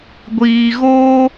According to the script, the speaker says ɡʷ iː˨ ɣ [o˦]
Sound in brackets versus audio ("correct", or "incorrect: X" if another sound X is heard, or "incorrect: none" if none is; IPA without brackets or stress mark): incorrect: oː˦